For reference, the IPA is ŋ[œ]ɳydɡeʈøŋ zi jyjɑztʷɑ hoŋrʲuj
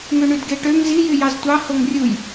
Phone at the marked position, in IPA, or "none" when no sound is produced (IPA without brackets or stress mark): ø